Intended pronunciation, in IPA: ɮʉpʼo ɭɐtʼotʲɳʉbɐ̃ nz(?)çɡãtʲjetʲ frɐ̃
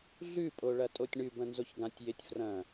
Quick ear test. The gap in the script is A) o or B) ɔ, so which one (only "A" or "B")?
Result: A